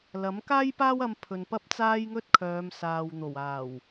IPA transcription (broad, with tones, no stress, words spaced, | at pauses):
lɐ˨˥mkaː˥jpaː˥w ɐ˧mpʰɵ˨n pɐ˥p̚t͡saː˥jŋɵ˥t̚kʰœː˨˧m saː˨wn̪o˨˩waː˨˩w